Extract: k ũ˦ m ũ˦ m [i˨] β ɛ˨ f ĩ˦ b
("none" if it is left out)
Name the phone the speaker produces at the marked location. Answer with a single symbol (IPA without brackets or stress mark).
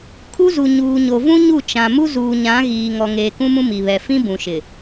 i˨